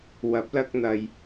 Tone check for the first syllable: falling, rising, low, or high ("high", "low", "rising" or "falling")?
rising